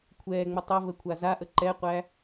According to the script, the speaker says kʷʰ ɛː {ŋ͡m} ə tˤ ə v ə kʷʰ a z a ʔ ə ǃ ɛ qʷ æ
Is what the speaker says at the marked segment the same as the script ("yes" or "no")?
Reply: yes